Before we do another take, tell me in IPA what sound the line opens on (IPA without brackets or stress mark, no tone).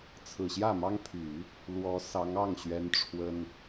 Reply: t͡sʰ